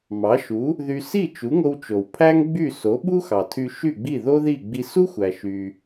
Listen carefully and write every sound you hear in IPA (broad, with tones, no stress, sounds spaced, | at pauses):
m ɑ˩˥ ʃ u˩˥ | ð y˧ s i˥˩ t͡ʃ u˩˥ ŋ o˧ w t͡ʃ o˩ w pʰ æ˥ ŋ ɡ͡b y˥˩ s o˩˥ ɓ u˥ x ɑ˩ tʰ y˧ ʃ y˥˩ ɡ͡b i˥˩ ð o˥ ð i˥˩ ɡ͡b i˧ s u˥ xʷ æ˩ ʃ y˩